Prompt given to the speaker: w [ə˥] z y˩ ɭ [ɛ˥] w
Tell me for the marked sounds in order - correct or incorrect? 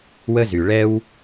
correct, correct

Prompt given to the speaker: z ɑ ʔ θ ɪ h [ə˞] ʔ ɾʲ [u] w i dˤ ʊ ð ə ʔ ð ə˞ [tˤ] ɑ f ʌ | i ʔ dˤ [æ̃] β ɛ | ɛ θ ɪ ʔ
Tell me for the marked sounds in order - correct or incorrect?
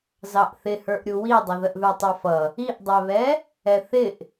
correct, correct, correct, incorrect: æ

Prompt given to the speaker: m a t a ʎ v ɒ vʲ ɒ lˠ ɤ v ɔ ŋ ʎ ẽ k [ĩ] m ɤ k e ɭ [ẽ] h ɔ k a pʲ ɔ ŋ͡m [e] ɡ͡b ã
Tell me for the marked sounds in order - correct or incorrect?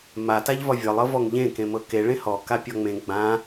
incorrect: ẽ, correct, incorrect: ẽ

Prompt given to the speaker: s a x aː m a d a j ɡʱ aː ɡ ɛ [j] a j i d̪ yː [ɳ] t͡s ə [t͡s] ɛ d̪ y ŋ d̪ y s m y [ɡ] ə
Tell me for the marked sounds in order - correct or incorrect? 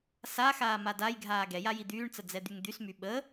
correct, correct, incorrect: d͡z, incorrect: ɓ

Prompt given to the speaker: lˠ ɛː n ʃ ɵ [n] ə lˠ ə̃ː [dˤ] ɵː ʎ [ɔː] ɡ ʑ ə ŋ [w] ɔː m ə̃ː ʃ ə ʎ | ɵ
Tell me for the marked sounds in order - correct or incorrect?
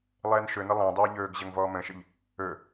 correct, correct, incorrect: ɵː, incorrect: v

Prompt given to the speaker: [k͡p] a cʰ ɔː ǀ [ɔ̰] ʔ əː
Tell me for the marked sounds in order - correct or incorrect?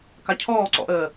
incorrect: k, correct

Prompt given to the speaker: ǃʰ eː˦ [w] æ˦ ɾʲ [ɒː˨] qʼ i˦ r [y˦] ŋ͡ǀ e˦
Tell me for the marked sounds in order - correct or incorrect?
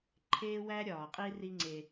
correct, correct, incorrect: i˦

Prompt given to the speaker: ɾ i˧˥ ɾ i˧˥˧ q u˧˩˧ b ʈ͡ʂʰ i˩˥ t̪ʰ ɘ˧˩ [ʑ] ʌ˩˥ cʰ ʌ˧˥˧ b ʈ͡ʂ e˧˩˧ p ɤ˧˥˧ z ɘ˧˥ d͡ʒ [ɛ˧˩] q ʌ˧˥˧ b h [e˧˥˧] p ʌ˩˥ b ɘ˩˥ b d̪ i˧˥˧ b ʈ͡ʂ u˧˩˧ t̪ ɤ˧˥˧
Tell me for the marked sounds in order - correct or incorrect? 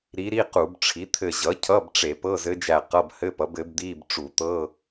correct, incorrect: æ˧˩, incorrect: ɘ˧˥˧

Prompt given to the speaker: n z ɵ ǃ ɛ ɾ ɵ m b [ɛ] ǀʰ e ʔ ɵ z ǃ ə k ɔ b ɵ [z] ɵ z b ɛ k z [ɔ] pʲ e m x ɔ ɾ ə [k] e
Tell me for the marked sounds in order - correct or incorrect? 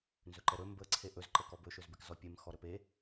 incorrect: ə, incorrect: ʃ, correct, incorrect: p

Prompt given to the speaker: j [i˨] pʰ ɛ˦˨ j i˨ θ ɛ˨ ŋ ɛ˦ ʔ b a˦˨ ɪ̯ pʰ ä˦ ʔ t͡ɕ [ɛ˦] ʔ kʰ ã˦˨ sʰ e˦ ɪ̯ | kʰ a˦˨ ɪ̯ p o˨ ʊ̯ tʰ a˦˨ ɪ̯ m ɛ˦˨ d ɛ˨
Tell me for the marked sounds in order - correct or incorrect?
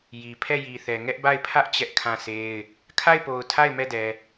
correct, correct

